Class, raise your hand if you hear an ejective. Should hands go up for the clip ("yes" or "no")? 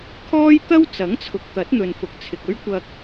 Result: no